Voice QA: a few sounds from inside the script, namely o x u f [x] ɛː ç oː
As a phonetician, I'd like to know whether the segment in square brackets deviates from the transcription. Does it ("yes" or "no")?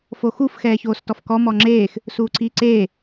no